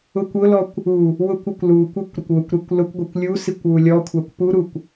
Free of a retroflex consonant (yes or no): yes